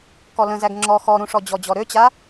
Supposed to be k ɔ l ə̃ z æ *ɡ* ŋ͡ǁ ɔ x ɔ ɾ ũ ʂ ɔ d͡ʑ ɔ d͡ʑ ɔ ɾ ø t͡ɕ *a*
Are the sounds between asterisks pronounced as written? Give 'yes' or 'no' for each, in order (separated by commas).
yes, yes